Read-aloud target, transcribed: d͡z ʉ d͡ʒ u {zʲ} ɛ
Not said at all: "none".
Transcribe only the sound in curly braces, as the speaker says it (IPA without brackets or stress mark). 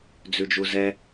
z